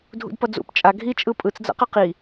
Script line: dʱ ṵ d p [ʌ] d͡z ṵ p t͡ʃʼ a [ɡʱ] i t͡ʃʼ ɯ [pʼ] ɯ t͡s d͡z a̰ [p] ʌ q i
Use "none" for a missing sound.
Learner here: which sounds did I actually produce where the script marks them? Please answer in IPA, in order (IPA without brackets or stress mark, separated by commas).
ʌ, ɡʱ, pʼ, q